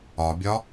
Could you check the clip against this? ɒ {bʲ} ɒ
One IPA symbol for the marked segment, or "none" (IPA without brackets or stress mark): bʲ